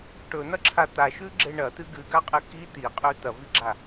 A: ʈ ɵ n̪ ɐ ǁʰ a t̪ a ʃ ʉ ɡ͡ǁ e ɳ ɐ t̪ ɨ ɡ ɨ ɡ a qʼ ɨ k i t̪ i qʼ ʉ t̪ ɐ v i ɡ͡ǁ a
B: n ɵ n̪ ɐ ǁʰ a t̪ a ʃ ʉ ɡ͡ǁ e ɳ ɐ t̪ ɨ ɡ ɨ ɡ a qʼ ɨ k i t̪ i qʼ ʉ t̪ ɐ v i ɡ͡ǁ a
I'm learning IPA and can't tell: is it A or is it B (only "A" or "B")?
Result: A